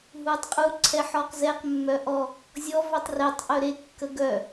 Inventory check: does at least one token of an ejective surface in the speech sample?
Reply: yes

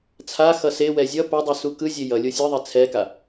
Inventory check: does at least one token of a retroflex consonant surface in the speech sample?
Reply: no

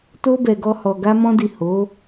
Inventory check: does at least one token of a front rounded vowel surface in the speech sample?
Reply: no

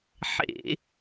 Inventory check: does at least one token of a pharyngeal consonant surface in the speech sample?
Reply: yes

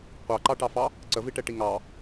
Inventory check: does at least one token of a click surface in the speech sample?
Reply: yes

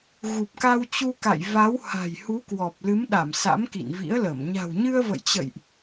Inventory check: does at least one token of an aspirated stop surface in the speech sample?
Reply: no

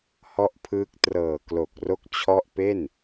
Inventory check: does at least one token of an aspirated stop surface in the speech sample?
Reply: yes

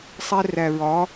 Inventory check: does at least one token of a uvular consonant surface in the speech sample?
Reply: no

